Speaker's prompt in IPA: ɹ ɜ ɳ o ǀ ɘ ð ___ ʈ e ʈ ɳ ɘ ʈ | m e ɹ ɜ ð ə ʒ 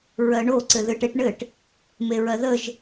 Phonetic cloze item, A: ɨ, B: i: A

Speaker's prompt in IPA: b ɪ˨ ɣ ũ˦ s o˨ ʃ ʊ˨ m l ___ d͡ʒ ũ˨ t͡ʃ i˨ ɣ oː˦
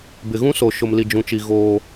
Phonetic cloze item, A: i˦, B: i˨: B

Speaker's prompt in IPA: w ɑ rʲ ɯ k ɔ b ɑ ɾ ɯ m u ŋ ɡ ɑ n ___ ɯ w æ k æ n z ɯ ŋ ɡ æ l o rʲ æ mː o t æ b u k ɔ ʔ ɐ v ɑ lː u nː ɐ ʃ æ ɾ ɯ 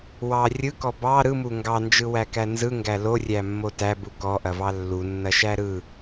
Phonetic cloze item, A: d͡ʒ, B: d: A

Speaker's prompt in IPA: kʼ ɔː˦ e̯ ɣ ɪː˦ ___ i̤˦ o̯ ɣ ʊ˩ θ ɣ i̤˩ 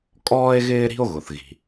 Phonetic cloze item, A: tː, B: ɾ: B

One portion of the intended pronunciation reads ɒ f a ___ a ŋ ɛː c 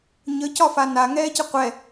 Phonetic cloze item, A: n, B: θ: A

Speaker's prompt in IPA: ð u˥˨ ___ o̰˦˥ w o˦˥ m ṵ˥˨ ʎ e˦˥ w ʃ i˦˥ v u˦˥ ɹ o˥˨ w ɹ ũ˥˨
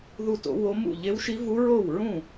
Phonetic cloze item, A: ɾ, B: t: B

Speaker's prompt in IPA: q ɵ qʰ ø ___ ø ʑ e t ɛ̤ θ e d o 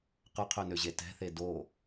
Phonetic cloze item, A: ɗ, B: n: B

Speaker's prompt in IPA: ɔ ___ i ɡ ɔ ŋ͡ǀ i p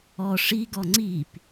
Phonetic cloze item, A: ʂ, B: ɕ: A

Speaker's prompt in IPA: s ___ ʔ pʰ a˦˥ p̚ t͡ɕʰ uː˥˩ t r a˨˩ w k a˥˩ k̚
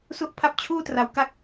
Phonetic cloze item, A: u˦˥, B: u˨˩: A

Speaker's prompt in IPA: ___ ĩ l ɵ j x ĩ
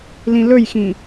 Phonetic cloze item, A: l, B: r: A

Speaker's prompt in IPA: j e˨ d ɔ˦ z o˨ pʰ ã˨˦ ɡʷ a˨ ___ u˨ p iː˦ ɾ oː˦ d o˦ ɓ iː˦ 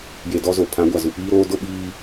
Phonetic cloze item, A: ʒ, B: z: B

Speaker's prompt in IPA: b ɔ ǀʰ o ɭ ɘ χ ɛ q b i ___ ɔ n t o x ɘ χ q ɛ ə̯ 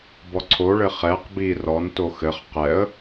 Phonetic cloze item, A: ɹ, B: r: B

